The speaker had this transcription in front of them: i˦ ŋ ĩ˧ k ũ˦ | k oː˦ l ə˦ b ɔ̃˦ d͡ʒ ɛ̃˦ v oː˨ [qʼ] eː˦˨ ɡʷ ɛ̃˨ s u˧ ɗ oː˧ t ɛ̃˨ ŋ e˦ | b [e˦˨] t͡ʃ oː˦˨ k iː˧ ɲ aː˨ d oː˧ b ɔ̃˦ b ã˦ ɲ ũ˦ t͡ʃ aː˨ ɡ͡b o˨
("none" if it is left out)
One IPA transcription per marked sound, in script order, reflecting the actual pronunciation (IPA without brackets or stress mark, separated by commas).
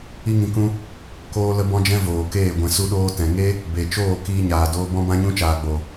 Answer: k, e˨